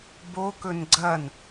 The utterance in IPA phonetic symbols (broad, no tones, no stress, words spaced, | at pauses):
bokɵn ɡ͡ǀɐn